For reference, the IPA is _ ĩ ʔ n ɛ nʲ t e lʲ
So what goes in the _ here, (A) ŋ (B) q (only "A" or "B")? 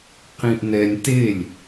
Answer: B